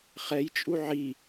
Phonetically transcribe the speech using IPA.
χ ɛ j t͡ʃʼ u ʕ i

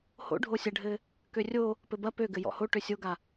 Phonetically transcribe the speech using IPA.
h o̰ ɖʱ o sʲ ɐ ɖʱ ɘ | k ø rʲ o | p ɘ b ɐ p ø ɡ ɘ j ɔ̰ h o ʈ ø sʲ o ɡ a

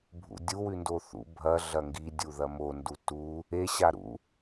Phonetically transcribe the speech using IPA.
bʱ ṵ dʲ u w ʉ n d o θ ṵ bʱ ɐ ɮ ɐ ŋ ɡ i dʲ u ð ɐ m o n d u t u | e ɕ a ɾ ṵ

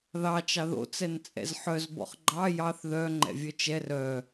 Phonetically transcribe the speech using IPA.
ð ɑ t͡ʃ ɑ ð o̰ t͡s ɛ n t͡sʼ ɛ̰ z ħ œ z b ɔ̰ χ ɡ͡ǃ ɑ j ɑ θ ð œ ŋ͡ǃ ɛ̰ vʲ œ t͡ʃ ɛ r œ

